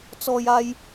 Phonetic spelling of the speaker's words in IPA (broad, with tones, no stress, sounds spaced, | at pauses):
t͡s ɔː˨ j aː˧ j